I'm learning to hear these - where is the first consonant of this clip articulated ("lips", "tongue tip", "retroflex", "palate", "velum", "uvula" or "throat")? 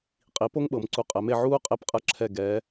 uvula